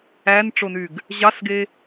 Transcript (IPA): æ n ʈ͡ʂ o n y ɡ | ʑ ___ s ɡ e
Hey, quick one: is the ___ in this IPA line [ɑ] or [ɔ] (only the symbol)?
ɑ